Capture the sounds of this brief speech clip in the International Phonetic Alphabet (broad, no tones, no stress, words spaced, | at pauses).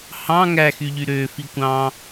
hɑ̃ ŋæxyʎy ɾø fikʷɑ̃